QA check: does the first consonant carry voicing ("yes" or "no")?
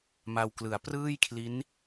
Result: yes